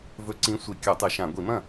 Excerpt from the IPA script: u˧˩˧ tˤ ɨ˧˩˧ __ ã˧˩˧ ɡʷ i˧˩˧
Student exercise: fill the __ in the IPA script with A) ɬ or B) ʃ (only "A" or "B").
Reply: B